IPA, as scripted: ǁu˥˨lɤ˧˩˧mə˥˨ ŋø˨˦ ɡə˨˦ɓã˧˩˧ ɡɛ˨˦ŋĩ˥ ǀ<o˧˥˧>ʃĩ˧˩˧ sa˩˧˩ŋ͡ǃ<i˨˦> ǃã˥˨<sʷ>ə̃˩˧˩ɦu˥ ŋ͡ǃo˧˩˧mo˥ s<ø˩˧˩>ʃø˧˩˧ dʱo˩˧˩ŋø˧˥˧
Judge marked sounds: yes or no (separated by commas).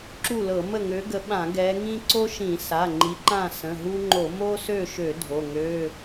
no, yes, no, no